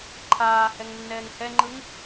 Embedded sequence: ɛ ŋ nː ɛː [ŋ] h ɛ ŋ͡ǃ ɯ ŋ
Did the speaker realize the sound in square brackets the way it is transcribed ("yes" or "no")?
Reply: yes